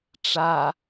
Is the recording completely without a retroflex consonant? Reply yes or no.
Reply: no